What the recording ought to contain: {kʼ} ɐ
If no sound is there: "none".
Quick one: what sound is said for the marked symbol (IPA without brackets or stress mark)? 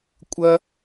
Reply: kʷʼ